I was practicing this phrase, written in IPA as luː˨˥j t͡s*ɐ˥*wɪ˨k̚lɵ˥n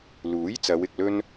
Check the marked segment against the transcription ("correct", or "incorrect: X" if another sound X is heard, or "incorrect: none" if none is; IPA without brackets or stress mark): incorrect: ɐ˨˧